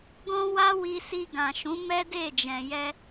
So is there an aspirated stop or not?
no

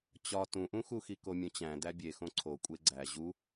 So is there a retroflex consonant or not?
no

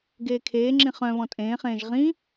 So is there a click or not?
yes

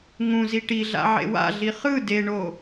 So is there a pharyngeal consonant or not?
yes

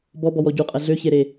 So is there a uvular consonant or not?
yes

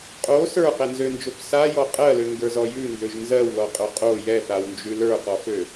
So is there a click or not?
no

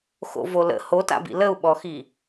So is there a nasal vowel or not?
no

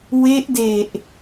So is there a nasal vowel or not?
no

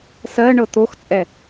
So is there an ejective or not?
yes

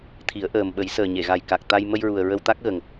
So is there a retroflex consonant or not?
no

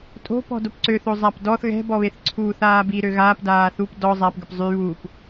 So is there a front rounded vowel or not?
yes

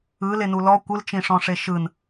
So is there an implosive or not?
no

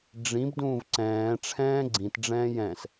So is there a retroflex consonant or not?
yes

